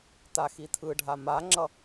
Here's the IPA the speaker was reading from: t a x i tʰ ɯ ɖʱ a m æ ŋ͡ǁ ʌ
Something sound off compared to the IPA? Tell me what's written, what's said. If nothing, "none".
æ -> a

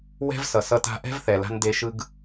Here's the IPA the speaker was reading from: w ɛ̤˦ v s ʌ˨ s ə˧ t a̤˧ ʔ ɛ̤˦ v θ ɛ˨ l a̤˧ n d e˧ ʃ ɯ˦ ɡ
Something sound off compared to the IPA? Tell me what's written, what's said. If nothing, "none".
ə˧ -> ʌ˧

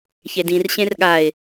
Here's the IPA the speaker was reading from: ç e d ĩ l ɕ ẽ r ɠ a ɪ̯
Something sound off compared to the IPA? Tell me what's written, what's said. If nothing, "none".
l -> r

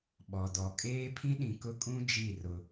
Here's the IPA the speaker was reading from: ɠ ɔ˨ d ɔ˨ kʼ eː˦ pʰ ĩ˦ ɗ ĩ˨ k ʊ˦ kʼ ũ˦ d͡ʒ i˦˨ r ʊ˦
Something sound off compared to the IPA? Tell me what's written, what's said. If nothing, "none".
ɠ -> ɓ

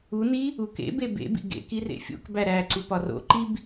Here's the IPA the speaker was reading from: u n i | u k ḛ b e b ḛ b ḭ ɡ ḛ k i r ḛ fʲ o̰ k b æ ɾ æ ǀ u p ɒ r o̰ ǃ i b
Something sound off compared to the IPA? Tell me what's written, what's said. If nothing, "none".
none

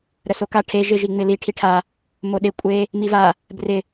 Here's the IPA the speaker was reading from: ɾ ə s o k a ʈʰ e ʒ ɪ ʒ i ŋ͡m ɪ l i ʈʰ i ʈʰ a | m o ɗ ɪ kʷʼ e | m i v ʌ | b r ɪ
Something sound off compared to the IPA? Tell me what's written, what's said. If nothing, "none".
ʌ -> a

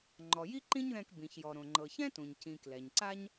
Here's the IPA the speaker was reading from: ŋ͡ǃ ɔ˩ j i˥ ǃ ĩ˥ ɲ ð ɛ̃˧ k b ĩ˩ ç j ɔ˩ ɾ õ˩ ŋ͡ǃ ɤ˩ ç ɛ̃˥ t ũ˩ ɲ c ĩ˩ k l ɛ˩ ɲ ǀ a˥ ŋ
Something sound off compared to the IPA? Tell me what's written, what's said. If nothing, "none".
ŋ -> ɲ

